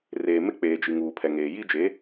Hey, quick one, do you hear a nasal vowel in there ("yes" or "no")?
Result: no